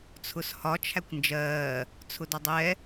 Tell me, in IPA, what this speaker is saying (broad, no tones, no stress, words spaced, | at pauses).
t͡sʰʊshɒ t͡ʃʰækʷnd͡ʒɜː | t͡sʰʊdɒdˤɛ